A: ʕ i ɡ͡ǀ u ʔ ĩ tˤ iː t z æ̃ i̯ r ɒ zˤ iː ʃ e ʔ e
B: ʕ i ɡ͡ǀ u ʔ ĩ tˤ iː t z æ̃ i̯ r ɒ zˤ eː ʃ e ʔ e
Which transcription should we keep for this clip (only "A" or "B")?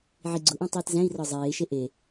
B